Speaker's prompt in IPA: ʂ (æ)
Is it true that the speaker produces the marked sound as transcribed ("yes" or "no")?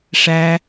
yes